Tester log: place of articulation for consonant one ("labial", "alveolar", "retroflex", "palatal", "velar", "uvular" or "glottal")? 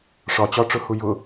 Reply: retroflex